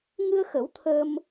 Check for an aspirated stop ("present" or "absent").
present